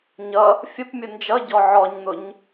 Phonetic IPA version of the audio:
ɲʌ | fʲəpmʲʊ nd͡ʒʌɟɔ ʕɔɲn̪ʊɲ

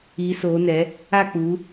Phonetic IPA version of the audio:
iː˨˦soː˨˦nɛ˨˦ | a˦˨k͡pu˨˦

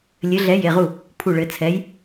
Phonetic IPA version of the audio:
lʲɘ˨˥ɮɛ˨˥je˩˧˩ʁu˥˩ | pʰu˧˩ɭɘ˩˧˩ t͡sʰɛ˨˥j

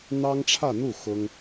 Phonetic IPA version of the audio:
n̪ɑ˥ŋʈ͡ʂʰä˥˧n̪u˥˩ xʊ˥ŋ

